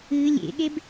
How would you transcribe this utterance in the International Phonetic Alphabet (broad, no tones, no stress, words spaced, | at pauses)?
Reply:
ɨ lʲḛɠeb